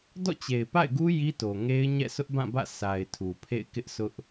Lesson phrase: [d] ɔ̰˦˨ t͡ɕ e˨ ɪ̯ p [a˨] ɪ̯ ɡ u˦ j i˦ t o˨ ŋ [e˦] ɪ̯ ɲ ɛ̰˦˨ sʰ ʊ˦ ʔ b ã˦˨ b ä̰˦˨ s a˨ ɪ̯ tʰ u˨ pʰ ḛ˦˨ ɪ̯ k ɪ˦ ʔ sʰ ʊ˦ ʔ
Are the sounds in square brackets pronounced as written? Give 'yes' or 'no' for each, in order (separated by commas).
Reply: yes, no, yes